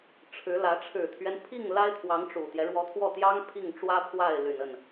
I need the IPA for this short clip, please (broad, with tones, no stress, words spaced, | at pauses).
ʈ͡ʂʰɻ̩˧˥lä˧˥ ʈ͡ʂʰɻ̩˨˩t̪ʰɥɛ˦n pʰi˥˩ŋ la˥ɪ̯t̪ʰwɑ˧˥ŋʈ͡ʂu˨˩t̪jɛ˦ ɻwɔ˧˥t̪ʰwɔ˥˩t̪jɑ˥ŋ pʰi˥˩ŋʈ͡ʂwä˥pʰwa˥˩ɪ̯ ly˨˩nə˥˩n